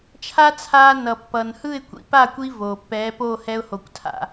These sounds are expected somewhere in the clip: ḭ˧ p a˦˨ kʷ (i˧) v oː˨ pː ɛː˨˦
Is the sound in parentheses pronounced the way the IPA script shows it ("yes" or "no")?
yes